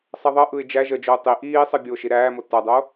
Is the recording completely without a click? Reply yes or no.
yes